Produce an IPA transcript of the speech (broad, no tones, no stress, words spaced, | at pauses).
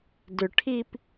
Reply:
dʏʈʰip